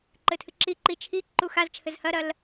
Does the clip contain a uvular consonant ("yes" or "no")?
no